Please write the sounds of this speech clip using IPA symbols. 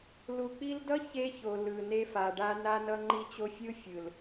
l u˨ k͡p i˧ l d ʌ˦ ç e˦ ç o˨ l ɯ˨ n e˧ f a˨ ɖ a˧ n a˧ n ʌ˧ ŋ͡ǃ i˧ t͡ɕ o˧ fʲ ɯ˦ fʲ ɯ˨ l

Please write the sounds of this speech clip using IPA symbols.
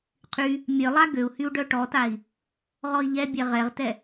qʰ y | mʲ œ lˠ a ɡ ø u̯ h y u̯ ɖ œ ʈ ɔ t a i̯ | ʁ ɔ i̯ ʎ ɛ bʲ ɛ ʁ ɛ ʁ t ɛ

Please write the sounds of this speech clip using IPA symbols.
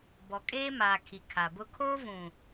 b ɔ˨ kʼ eː˦ m aː˨ kʰ i˨ kʰ a˨ b ʊ˦ kʰ oː˦ v ũ˨

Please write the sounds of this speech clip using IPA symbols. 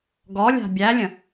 ɡ ɔ lʲ a̤ bʲ æ lʲ ə̃

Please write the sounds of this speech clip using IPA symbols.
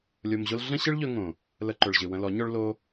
lʲ o˧ m ʑ o˦ l ɮ ə̃˦ ɕ ɨ˦ ɭ ʎ ɵ˧ ŋ õ˨ | l ə˧ ǃ ɵ˨ ɭ ʑ ɨ˨ w ə̃˧ l ɔ˨˦ ɲ ɔ˦ ɭ l o˦

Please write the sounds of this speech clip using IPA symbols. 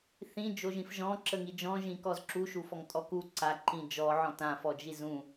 θ ĩ d͡ʒ o ʒ ĩ f ʒ ɔ̃ ǁ ə ŋ i d͡ʒ ɔ̃ ʒ ĩ k ɔ z ǁ u ʃ u f ɔ ŋ tʼ ɔ k u ǀ a ǃ ĩ d͡ʒ ɔ ʕ ɔ̃ t ã f ɔ d͡ʒ i z ũ

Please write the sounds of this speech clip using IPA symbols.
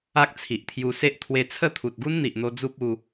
a˦ k̚ t͡sʰ i˨ ʔ t̪ʰ j u˧ s e˦ ʔ t̪ʰ w e˧ t͡sʰ ə˥˧ t̪ʰ u˨ t̚ ɡ u˦ n n̪ i˨ ʔ n̪ o˧ d͡z u˦ p̚ u˧

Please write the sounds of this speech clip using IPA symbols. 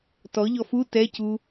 t ɔ ʎ ɔ f u t ɛ c u

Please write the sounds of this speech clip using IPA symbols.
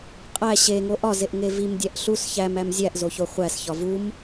qʼ æ ɕ e ŋ o ʔ ɒ z e ʔ ŋ e v i m dʲ æ ʔ ɬ u s ç æ m æ m zʲ æ ʔ z o ç o χʷ æ s ç ɒ v u m

